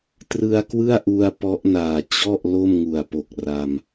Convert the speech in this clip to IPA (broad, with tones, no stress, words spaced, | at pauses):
trɯ˧a̯kwɯ˥˩a̯ʔu˧a̯ pɔ˦˥ʔnaː˨˩ t͡ɕɔ˥˩ʔ lo˥˩mŋu˨˩a̯po˨˩k̚ ra˧m